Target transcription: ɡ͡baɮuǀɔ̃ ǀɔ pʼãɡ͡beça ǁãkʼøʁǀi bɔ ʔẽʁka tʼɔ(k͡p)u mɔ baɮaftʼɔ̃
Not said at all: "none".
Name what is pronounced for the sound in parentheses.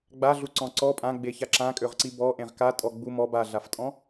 ɡ͡b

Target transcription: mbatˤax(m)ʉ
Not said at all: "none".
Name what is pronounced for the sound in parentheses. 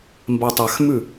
m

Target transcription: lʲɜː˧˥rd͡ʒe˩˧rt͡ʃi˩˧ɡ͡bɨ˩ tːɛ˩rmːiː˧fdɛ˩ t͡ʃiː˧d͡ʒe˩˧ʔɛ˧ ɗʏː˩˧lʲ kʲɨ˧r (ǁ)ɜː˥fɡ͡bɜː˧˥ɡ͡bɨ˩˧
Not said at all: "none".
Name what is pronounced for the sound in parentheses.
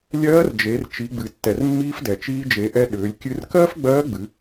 k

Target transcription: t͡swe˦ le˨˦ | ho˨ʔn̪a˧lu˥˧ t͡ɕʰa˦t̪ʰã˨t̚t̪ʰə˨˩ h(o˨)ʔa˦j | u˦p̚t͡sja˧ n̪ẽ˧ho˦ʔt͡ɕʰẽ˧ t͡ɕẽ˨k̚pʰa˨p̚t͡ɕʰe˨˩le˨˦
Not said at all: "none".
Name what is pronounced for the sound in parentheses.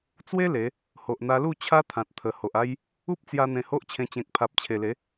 o˨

